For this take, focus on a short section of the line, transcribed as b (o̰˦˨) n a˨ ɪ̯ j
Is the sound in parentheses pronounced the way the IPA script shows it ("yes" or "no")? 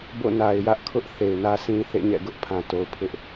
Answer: yes